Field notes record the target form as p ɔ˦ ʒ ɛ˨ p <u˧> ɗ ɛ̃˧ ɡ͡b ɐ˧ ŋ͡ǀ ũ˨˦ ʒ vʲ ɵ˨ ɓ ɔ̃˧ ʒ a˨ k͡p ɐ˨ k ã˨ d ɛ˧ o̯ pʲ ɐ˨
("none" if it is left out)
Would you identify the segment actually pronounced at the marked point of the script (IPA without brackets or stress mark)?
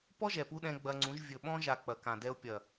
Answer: u˧